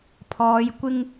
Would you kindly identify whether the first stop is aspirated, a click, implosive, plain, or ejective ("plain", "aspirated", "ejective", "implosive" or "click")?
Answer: aspirated